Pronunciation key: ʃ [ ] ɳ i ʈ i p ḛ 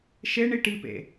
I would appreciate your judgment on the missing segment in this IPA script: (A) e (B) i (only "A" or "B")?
A